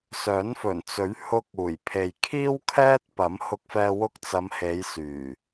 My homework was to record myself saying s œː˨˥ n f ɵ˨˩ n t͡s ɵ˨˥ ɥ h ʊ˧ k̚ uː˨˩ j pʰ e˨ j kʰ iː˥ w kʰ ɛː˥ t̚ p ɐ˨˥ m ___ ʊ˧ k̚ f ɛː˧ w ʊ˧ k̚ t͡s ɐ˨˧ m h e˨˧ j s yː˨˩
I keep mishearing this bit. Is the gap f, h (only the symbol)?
h